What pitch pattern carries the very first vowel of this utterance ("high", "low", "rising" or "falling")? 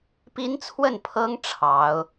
high